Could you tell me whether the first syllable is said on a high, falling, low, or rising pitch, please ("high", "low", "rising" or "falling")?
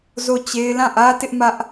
falling